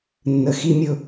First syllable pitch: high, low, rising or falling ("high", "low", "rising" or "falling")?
low